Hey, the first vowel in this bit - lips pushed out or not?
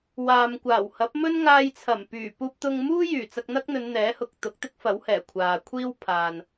no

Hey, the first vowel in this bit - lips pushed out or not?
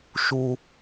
yes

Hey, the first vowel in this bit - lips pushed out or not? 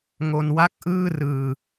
yes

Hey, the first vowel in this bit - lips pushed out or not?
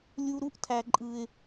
yes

